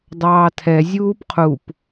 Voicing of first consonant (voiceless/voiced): voiced